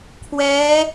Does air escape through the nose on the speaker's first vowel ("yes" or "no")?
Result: no